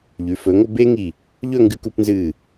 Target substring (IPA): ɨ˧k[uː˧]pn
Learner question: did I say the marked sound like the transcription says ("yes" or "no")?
no